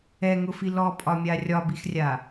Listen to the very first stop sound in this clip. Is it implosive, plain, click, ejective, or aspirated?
ejective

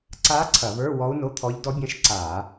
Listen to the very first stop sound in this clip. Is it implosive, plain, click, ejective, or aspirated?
click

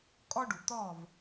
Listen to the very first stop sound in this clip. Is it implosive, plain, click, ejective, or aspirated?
ejective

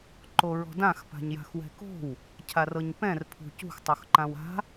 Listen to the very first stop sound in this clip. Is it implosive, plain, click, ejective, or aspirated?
click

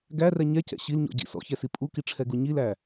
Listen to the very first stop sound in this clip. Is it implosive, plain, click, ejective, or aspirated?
plain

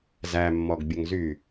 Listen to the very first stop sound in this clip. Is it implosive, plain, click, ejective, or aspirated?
plain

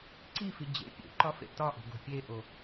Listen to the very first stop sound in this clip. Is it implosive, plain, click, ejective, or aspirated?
click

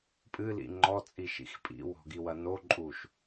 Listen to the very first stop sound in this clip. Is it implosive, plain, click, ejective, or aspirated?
ejective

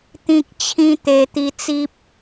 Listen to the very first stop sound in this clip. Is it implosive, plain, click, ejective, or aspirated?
plain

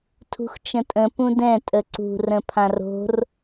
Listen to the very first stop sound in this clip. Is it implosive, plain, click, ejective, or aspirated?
aspirated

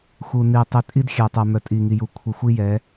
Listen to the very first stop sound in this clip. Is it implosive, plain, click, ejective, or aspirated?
plain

